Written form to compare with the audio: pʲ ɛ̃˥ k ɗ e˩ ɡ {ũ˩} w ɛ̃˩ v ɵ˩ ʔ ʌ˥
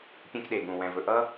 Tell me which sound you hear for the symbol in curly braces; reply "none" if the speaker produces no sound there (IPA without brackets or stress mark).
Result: ũ˩